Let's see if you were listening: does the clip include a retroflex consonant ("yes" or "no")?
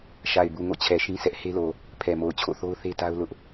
no